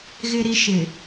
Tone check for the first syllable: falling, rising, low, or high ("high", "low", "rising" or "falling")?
high